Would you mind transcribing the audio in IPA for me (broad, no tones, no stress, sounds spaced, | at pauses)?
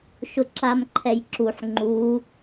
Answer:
ʃ ʊ ǁ a m ǃʰ ɛ j ǁ u ħ ŋ͡ǃ u